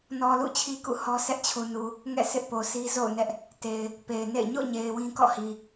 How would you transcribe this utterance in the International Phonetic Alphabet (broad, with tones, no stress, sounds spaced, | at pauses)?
n ɔ˨ l ṵ˦˨ t͡ɕʰ i˦ k ṵ˦˨ h ɔ˦ s ɛ˦ ʔ t͡ɕʰ u˨ n u˨ | ŋ ɛ̰˦˨ s ɪ˦ ʔ p o˨ sʰ i˦ z o̰˦˨ ʊ̯ n ɛ˦ ʔ | t e˨ ɪ̯ | p e˨ ɪ̯ n ḛ˦˨ ɪ̯ ɲ o̰˦˨ ɲ e˨ ɪ̯ w ĩ˦ k ɔ̰˦˨ h i˨